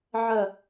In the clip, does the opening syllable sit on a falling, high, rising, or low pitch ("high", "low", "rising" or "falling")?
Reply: falling